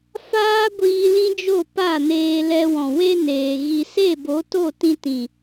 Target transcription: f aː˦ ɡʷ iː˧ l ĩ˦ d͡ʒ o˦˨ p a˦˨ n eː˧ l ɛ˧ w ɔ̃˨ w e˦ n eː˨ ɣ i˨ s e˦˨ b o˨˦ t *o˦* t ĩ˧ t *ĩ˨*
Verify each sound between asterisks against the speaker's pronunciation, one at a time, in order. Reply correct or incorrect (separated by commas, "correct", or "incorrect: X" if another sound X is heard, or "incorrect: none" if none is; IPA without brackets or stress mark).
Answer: incorrect: o˦˨, correct